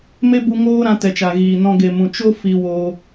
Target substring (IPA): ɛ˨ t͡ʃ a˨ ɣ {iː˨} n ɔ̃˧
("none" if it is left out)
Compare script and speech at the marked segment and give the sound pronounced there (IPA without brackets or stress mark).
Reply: iː˨